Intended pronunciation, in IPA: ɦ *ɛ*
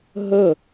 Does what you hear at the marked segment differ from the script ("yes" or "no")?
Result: yes